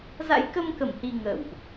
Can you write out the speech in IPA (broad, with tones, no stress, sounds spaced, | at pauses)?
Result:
z a̰˧˥ j k ə˧ m k ə˧˩ m h i˨˩ ŋ ə̰ː˧˨ w ʔ